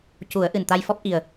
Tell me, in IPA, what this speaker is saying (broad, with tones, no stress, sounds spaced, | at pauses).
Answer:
c u˨˩˦ ə̯ ʔ ɨ˨˩ n t̪ a˧ j f ɔ˦˥ p̚ ʔ i˨˩ ə̯